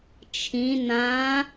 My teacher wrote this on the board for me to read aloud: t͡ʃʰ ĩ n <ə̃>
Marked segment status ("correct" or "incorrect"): incorrect